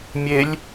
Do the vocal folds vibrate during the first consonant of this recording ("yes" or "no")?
yes